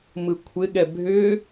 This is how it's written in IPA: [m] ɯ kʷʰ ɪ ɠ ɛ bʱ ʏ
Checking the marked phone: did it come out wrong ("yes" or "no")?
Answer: no